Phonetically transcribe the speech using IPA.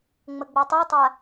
ŋ͡m ə ɡ͡b o tˤ o tˤ a

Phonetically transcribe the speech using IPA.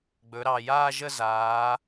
ɡ͡b ɵ˩˧ ɾ ɑ˨˩ j aː˥˧ ʒ ə˥˧ z aː˩˧

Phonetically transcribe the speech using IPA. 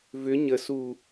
v ʏ ɲ ə s u

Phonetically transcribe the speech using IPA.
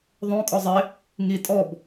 ðˤ õ kʼ ɔ zˤ ɪ | ŋ i tʼ ɔ b

